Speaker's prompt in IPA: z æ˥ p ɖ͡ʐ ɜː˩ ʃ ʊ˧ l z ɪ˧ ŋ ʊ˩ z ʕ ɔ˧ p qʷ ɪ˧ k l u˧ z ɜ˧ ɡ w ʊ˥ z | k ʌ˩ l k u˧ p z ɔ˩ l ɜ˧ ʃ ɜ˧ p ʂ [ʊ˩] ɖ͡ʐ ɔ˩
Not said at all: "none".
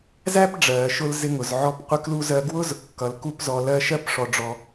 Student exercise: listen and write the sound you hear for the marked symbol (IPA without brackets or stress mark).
ɔ˩